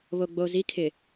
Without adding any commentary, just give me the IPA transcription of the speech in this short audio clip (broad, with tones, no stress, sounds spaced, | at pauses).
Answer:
β o˨ ɡ͡b o˨ z i˦ kʰ ɪ˨